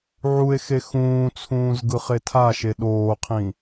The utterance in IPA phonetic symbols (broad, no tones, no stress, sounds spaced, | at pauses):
ʕ u e̯ x e x ũː t͡sʰ ũː z ɡ ɯ χ e tʰ a ʃ e ɗ oː qʰ ĩ